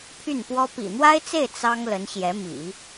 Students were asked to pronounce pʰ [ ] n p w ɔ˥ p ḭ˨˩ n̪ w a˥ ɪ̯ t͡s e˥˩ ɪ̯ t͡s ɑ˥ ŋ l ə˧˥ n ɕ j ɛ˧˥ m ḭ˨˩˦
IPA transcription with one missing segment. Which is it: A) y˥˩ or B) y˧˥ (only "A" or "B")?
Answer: A